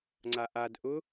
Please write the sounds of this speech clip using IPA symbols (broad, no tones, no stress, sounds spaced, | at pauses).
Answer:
ŋ͡ǀ a ʔ a d ʔ ʊ